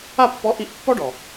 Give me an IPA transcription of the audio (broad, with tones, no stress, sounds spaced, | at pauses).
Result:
a˥˧ pː ɔ˧˥ ʔ i˧˥ ʔ pː ɔ˥ ɖ ɔ˩